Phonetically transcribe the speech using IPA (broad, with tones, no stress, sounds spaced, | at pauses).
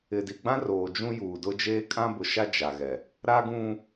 ɪ˨ d i˨ ɡ͡b ã˦ r oː˨ d͡ʒ ũ˦ j uː˨ d ʊ˦ d͡ʒ eː˦ kʼ ã˦ b ʊ˨ ʃ a˦ d͡ʒ a˨ ɣ ɛ˨ | ɾ a˦ ɡ ũ˦